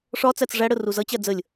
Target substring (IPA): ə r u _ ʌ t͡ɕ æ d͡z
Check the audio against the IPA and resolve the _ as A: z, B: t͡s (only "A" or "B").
A